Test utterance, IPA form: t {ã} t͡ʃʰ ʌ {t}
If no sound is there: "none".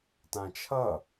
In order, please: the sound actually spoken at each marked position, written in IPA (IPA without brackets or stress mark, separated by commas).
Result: ã, none